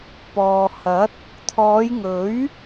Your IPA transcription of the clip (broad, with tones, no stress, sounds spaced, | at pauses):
p ɔː˨ h ɐ˨˥ t̚ | t̪ʰ ɔː˨˧ j ŋ ɵ˨˥ ɥ